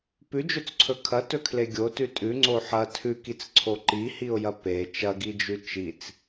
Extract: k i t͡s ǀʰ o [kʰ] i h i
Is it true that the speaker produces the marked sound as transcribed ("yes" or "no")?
no